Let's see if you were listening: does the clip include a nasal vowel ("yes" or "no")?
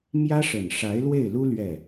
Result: no